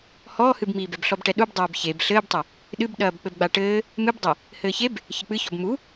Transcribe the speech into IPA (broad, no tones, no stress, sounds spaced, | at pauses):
h ɔː h ɨ b m iː b ɛ b ɬ ɔ b ʈ ɛ ɗ u b dˤ ɐː b ç e b ɬ ɘː b tˤ ɐ | ɗ ɨ b ɗ ɐː b k͡p ɘ b ɡ͡b a ʈ ɘː | m ɨ b dˤ e | h ɘː ç e b | ç ɘ k͡p ɨ ç ɔ b m u